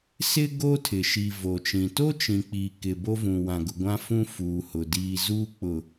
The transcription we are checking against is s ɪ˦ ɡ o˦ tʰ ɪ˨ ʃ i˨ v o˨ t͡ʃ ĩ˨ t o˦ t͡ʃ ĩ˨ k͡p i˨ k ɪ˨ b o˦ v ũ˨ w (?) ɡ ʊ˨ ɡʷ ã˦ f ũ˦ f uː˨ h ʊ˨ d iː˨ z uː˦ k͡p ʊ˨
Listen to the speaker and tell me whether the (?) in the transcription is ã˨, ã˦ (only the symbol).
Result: ã˨